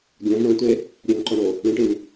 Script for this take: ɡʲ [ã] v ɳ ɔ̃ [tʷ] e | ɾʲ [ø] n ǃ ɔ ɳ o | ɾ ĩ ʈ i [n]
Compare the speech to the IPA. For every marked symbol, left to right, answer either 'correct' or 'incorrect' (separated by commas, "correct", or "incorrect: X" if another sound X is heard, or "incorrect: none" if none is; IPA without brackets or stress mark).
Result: correct, correct, correct, correct